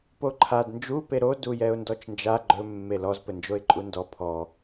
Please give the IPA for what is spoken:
poǃʰad nd͡ʒu peɾo dujɛʊ̯ndɔt͡ʃnd͡ʒa ɡ͡ǃɵ mːelɔz pɘnd͡ʒoɪ̯ǃʼundɔ pʰɔ

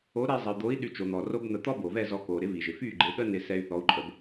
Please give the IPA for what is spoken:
o˩˥ɾe˧ zˤə˩y̯d̪o˩˥i̯ ɗy˩˥t͡ʃo˩n̪ɔ˩ ro˥bn̪ə˧ t̪ɔ˥bo˩vɛ˥˩ zɔ˧koː˩ ɾɪ˩˥ vi˩ʒɪ˩fyː˥˩ ɡ͡ǃe˩˥ɠə˥ nɪ˧sɛ˧y̯ θɔ˩˥u̯ǃʼə˩˥b

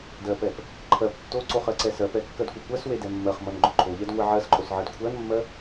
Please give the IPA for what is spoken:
dɜpɛp | ǃʰɜp tːoǀoχ ɜǀɛsɜpɛ kːɜdkʷekʷɜswe dɛmːɜχmʌn ɡ͡ǃoǃʰoʎɛd ŋʷeʕɜsǃʼos ʕɜdkʷʰɜnmːɜ

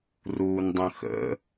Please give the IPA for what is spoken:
ruːndˤə̃xə̰

